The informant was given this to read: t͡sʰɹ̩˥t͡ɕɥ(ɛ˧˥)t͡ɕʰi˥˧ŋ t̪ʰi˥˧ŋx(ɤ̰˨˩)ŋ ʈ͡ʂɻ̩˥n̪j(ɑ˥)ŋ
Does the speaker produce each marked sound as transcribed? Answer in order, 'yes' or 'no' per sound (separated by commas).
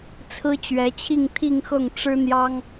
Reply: yes, no, yes